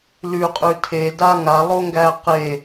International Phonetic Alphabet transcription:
l ʉ qʼ ʉ tʰ e d a ŋ a lˠ o ŋ ɡ æ q e

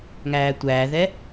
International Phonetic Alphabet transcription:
ŋ æː tʷ æː ð ɛ

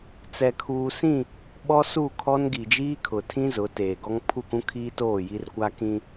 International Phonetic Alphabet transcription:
t͡s ɛ˨ kʰ uː˨ s ĩ˦˨ | ɓ ɔ˦ s u˦˨ kʰ ɔ˦ n ɡ i˨ d͡ʒ iː˦ kʰ ʊ˨ tʰ ĩ˦ z ʊ˨˦ t eː˨ ɡ ɔ˦ ŋ pʰ u˦˨ k ũ˦ kʰ iː˦ t oː˦˨ j i˦ r kʷ a˦ k ĩ˦

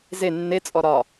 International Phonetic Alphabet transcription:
z e nː e t͡sʼ ɔ ɾ ɒ

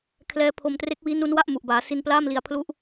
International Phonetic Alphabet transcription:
kʰ l ɛː˦˥ pʰ o˧ m t r e˦˥ k̚ w iː˦˥ n u˦˥ n w a˥˩ ʔ m u˨˩ ʔ b aː˩˦ s i˧ n p l aː˥˩ m l i˨˩ a̯ pʰ l u˦˥ ʔ

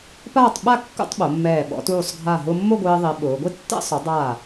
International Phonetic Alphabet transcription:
p aː˥˧ tˤ ɓ a˥˧ kː ṵ˥˧ tˤ ɓ o˩˧ mː ɛː˧˩ ɓ ɔ̰˧ t uː˧˩ sˤ ɡʱ a˧˩ ɦ ʊː˧ mː o˥˧ ɡʷ ɪː˧ ðˤ i˩˧ ɓ ʊː˩˧ ɡʷ i˥ tː ɛ̰˥˧ sˤ ʊ˩˧ dˤ aː˧˩

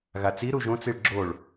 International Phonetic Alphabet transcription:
ɣ a t͡s i ɾ u ʒ õ t͡s i ɭ ɡ͡ǁ o ɭ

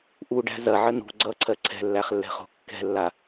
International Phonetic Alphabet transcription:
ʔ u ɖ æ̤ z ɐ ʕ ə n ṳ ɡ͡ǀ ʌ ǀʰ ɜ ǀʰ ɛ̤ lː æ χ lː ɛ̤ χ o̤ kː ɛ̤ lː a

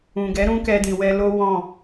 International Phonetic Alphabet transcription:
ũ˨ ɡ ɛ˨˦ ɾ ũ˦ k ɛ˧ d ĩ˨ w ɛ˧ l o˦ w ɔ̃˦˨

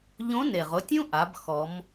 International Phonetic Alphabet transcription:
ʎ õ˧˥ n e˩ ʁ ʊ˧ tʲ ũ˥ ʔ a˩˧ b x ɔ˩˧ m

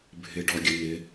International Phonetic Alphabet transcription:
bʱ ɪ ɖ ɔ ɡʲ ə n ɪ

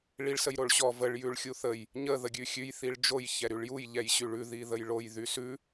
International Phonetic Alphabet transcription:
ɭ i ɭ s ə j ɾ o ɭ ɕ ɔ v ə ɭ j ʉ ɭ xʲ u θ ə j | ɲ ə ð ə ɡʲ ʉ xʲ ʉ j θ i ɭ d͡ʒ o j ç ɛ ɾ y ɭ j u j ʎ ɛ j ɕ y ɭ ʉ ð i ð ə j ɭ o j ð y s ʉ

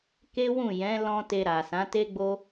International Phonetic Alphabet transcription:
k e˦ w ũ˦˨ j ɛ̃˨˦ l ɔ̃˧ t e˧ ɾ a˨ s ã˨˦ t e˦ ɡ͡b o˦

